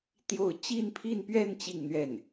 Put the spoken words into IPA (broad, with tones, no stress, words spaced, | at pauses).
t̪jo˥˧ʊ̯ t͡ɕi˥˧npʰi˥˧npɥɛ˥˧n t͡ɕi˥˧ŋn̪ɥɛ˥˩n